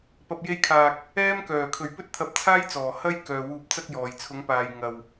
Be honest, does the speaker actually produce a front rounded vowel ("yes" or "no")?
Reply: yes